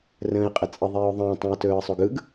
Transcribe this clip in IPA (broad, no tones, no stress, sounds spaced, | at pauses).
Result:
r ə̃ː ɪ̯ qʼ ə t͡sʼ ɪ ðˤ eː ʊ̯ ðˤ ə̃ː tˤ ũ ə̯ t ɵː ə̯ sˤ o ɡ ɯ ɡ